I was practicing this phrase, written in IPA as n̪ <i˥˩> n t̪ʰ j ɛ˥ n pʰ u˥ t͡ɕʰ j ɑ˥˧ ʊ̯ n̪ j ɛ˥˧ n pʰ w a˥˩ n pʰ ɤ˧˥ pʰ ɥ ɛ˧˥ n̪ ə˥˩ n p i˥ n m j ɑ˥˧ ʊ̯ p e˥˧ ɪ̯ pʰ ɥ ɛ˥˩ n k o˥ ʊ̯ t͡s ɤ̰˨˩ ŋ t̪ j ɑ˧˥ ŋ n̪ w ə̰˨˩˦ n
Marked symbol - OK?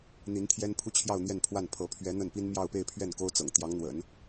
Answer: no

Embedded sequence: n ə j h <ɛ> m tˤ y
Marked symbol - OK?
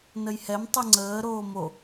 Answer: yes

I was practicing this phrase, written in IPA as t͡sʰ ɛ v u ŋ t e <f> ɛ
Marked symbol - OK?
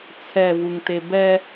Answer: no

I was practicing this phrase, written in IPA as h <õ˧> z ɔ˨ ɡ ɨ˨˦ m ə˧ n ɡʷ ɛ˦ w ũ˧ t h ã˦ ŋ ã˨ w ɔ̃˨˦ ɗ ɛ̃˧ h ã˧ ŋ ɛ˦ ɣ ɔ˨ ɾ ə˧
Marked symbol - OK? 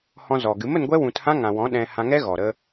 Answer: no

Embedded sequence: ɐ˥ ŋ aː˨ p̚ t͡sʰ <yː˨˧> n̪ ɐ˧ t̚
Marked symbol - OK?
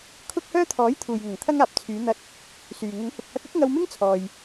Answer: yes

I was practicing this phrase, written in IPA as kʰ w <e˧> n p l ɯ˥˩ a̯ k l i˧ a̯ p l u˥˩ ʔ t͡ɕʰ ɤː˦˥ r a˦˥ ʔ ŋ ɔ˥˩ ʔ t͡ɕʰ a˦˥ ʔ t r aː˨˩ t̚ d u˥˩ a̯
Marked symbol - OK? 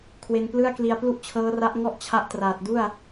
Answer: yes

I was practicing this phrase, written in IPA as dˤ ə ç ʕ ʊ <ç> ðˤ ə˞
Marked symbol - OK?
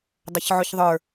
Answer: yes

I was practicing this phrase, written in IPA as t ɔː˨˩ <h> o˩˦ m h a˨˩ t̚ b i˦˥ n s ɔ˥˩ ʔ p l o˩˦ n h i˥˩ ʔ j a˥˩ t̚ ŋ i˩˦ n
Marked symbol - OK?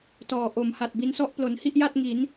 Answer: no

